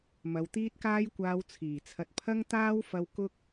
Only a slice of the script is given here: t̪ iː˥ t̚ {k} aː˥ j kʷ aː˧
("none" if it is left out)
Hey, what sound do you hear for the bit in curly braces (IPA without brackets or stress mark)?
k